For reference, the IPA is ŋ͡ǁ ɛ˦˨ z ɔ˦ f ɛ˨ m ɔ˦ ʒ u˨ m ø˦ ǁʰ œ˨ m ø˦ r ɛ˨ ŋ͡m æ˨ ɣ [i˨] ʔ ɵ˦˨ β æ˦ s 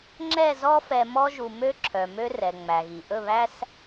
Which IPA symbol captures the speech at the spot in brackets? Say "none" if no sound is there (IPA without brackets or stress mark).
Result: i˨